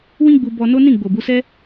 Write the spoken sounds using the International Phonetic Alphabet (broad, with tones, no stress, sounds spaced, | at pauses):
w ĩ˦ ɡ͡b u˧ b ɔ˧ n o˦ n ĩ˦˨ ɡ͡b o˨ b u˨˦ s ɛ˦